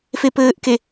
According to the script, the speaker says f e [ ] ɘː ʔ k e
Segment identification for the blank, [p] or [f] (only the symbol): p